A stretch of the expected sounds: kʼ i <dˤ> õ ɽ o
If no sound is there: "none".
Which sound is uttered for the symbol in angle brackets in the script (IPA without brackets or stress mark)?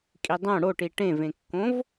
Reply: dˤ